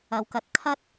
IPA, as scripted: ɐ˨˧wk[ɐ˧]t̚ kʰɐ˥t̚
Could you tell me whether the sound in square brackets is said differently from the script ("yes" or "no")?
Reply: no